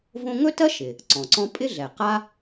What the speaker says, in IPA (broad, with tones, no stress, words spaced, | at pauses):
võ˦ŋɵ˥tɜ˥ʃɪ˩ | ǀɔ̃˩ǀɔ̃˥ pʼɪ˥ɮɛ˩qa˥